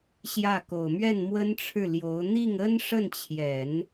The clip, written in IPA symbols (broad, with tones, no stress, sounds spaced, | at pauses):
ɕ j ä˥˩ k o˨˩ ʊ̯ m ɥ ɛ˥˩ n m w ə˥ n ʈ͡ʂʰ ɻ̩˥˩ l j o˧˥ ʊ̯ n̪ i˥˩ ŋ ə˥ n ʂ ə˥˩ n t͡ɕʰ j ɛ˨˩˦ n